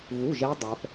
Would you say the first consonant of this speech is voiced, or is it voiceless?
voiced